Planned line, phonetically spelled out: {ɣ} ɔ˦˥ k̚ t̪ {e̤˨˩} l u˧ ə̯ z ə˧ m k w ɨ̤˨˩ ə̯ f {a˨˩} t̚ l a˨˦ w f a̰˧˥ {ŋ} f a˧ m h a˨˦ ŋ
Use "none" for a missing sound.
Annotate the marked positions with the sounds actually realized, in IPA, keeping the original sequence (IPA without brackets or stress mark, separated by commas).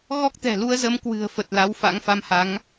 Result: ɣ, ɛ̤˨˩, ə˨˩, ŋ